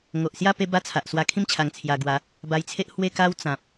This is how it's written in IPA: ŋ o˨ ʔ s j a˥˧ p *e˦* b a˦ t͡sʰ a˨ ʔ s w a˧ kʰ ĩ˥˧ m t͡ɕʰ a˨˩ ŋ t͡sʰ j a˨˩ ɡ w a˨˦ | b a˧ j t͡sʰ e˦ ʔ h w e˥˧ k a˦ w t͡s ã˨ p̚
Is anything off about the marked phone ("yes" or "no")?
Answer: no